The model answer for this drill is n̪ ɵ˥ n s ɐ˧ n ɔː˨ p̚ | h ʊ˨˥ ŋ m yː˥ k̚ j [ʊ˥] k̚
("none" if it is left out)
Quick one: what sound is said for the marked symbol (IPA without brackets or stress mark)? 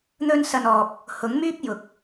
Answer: ʊ˨˥